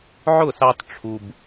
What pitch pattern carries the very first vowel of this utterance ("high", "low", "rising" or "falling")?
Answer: falling